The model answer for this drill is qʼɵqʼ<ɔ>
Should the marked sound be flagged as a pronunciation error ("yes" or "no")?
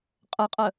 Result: yes